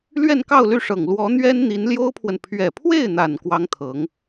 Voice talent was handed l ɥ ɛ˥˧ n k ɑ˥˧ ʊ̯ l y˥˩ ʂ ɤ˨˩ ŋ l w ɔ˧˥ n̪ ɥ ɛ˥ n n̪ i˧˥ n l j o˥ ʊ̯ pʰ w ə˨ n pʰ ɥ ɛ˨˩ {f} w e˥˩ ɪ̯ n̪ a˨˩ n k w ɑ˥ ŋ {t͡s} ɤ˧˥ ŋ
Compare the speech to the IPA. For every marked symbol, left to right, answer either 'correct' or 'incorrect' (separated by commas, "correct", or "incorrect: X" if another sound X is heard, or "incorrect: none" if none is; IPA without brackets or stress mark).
incorrect: pʰ, incorrect: t̪ʰ